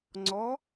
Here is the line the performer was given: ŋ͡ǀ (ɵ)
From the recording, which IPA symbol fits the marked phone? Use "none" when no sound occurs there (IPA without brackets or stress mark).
ɔ